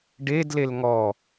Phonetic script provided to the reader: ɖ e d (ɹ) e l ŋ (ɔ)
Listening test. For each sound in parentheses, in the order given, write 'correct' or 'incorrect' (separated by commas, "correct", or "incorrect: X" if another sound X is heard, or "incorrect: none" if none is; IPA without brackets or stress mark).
incorrect: l, correct